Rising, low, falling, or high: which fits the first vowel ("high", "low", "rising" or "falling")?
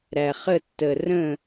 low